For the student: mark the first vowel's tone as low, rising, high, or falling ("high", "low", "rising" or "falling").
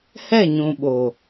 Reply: falling